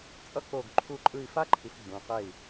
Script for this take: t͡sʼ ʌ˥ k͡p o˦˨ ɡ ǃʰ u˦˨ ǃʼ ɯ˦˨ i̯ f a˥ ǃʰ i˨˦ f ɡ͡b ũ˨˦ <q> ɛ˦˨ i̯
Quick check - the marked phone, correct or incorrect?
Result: correct